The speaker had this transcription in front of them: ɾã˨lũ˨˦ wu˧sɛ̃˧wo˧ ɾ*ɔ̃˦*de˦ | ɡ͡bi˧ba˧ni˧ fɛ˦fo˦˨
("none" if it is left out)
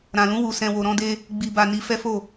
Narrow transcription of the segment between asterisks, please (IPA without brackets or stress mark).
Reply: ɔ̃˦